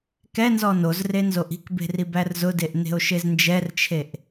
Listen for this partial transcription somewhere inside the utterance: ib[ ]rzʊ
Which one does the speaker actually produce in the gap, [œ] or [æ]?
æ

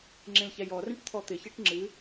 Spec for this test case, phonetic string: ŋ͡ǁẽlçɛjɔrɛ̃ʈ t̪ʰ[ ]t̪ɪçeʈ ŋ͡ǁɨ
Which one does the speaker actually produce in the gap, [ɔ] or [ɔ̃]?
ɔ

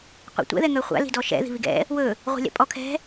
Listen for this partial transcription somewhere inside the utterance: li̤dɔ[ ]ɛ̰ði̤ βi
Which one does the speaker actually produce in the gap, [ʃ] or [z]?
ʃ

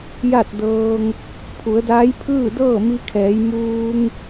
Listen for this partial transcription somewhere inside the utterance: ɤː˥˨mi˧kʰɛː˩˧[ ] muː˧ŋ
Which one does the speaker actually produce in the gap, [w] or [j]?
j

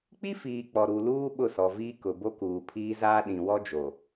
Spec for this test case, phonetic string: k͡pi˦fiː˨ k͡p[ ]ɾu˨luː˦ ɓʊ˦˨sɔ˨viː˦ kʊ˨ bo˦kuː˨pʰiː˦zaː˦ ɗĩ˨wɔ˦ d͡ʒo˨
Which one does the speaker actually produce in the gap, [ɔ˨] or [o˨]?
ɔ˨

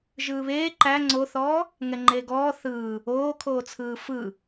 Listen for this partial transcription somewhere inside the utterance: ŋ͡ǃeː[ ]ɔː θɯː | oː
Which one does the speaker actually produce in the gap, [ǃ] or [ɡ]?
ɡ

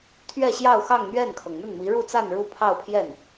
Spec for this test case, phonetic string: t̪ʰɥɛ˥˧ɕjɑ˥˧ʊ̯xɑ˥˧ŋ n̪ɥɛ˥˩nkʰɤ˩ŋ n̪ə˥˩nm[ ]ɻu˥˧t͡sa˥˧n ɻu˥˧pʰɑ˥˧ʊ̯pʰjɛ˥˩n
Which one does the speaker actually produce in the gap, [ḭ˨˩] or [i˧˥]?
i˧˥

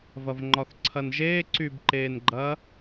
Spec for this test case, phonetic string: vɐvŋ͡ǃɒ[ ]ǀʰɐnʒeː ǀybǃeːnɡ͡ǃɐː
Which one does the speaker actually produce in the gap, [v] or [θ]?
θ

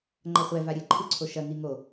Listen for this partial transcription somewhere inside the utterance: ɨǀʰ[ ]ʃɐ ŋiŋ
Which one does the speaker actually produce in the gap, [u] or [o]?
o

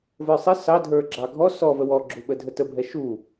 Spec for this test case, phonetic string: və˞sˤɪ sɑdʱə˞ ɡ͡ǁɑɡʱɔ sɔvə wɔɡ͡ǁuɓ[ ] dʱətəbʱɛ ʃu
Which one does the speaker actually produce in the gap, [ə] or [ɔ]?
ə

